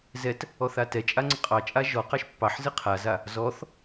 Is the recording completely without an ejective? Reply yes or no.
no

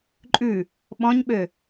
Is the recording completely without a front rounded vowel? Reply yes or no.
no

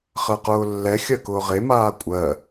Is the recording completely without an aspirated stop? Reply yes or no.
yes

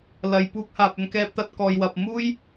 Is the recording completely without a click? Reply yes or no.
yes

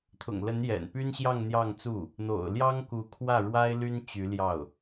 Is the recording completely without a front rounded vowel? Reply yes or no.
no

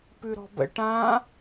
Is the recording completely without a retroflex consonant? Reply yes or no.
no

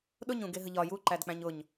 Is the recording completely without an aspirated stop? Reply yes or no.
yes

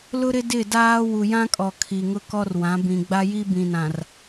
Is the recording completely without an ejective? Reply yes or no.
no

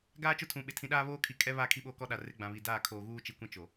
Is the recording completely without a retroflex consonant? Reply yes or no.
yes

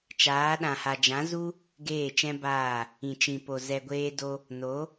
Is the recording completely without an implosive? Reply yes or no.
no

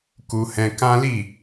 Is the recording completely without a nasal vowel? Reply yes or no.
no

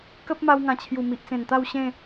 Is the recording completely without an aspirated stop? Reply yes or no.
no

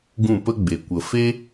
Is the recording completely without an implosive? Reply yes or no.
yes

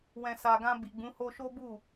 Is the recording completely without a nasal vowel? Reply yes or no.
no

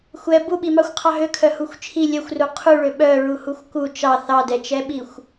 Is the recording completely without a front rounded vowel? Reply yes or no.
no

